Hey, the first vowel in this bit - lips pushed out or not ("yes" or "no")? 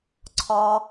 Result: yes